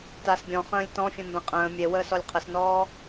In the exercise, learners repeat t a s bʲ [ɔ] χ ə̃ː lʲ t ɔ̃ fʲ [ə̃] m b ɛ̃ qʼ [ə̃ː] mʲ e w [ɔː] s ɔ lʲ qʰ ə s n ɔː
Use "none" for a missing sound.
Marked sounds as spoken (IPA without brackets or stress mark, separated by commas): ɔ̃, ə̃, ə̃ː, əː